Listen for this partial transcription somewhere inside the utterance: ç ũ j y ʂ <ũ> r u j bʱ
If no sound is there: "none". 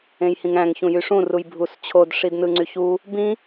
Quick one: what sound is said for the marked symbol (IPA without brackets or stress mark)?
ũ